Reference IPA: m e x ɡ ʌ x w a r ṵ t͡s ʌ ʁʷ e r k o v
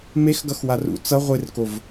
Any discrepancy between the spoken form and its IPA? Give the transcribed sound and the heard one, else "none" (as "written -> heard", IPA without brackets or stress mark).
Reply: none